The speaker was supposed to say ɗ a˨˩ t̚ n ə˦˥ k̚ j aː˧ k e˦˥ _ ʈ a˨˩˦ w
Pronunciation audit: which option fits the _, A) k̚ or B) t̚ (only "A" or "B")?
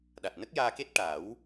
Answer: B